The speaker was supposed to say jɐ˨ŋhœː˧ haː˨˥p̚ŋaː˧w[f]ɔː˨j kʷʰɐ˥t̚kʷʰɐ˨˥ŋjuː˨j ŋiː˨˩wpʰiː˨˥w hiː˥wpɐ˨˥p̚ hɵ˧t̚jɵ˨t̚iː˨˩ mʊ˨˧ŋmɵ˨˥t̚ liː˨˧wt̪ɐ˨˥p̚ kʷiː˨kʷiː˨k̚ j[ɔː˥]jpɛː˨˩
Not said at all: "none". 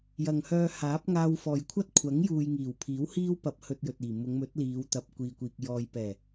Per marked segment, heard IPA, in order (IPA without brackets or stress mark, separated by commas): f, ɔː˨